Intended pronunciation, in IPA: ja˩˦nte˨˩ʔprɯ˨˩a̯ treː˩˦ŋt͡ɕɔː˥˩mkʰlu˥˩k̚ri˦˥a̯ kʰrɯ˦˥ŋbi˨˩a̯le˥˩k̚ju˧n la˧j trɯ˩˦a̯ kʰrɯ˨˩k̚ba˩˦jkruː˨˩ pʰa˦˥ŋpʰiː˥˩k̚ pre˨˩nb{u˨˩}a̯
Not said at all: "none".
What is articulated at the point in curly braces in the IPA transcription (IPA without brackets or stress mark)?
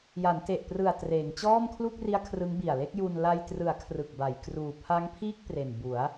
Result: u˩˦